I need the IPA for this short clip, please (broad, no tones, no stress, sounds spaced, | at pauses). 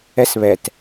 ɛ s β ɛ t